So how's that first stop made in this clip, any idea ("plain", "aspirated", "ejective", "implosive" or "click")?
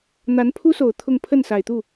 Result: aspirated